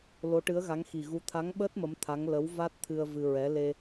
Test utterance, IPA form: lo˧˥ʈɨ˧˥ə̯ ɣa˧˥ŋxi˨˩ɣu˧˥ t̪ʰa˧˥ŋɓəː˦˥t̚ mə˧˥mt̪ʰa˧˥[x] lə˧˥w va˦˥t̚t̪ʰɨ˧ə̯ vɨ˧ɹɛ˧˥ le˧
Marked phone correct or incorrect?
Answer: incorrect